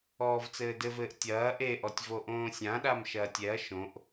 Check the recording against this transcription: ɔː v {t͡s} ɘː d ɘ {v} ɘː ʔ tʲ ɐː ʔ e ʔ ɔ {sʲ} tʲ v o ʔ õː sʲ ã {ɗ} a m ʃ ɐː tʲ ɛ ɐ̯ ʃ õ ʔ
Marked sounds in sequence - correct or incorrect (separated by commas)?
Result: correct, correct, incorrect, correct